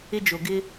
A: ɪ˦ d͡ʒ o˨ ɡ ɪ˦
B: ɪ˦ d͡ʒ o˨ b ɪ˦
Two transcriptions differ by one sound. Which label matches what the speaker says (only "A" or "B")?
A